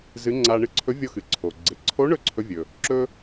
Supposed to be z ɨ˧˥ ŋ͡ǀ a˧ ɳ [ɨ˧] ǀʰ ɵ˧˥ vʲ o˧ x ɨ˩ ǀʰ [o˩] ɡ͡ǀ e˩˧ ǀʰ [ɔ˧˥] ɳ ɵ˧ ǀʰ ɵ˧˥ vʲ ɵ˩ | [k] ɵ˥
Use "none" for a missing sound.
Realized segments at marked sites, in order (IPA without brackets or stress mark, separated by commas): ɨ˧, o˩, o˧˥, ǁ